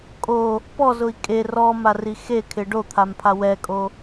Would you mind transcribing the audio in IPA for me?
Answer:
kʼ o | p ɔ z ʊ i̯ kʼ e r ɔ m a r i x e kʰ ɪ ɖ o t̪ʰ a m pʰ a w ɛ kʼ o

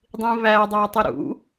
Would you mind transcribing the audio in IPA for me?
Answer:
dˤ ĩ β æ dˤ æ tˤ i ɾ ṵ

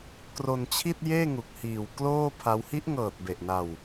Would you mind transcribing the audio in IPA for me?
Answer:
k r o˧ n t͡ɕʰ i˥˩ t̚ j eː˥˩ ŋ u˨˩ k̚ h iː˨˩ w k l oː˥˩ pʰ a˦˥ w h i˦˥ ʔ ŋ ɤː˨˩ t̚ b e˨˩ ʔ n a˧ w

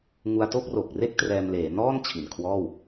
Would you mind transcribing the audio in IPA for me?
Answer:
ŋ u˧ a̯ t o˥˩ k̚ r o˨˩ k̚ r e˥˩ k̚ t r ɛː˧ m l eː˩˦ n ɔː˥˩ n t͡ɕʰ i˨˩ n kʰ w ɔː˥˩ w

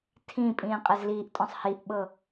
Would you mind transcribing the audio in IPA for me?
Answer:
tʰ ĩ pʼ ĩː qʼ e z l iː ʔ tʼ ɔ̃ sˤ h i ʔ ɓ ɤ

